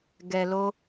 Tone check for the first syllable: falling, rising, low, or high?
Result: low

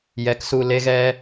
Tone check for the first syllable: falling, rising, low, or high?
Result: rising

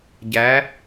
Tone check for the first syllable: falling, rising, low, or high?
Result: rising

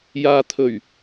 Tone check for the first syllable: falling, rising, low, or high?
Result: low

